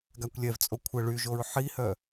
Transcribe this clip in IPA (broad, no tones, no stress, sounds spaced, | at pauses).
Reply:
ɡ a kʷ lʲ ɛ v t͡sʼ o kʷʰ ə ɭ y ʒ o ɹ ħ i h œ